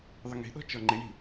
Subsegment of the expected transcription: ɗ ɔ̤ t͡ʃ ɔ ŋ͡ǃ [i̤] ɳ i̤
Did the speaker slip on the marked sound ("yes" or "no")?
yes